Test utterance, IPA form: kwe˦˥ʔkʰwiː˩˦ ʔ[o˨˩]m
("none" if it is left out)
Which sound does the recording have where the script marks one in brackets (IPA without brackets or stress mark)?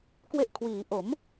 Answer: o˩˦